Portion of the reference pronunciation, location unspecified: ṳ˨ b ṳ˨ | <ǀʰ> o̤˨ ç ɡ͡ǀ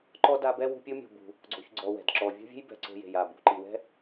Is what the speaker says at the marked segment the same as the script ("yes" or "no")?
no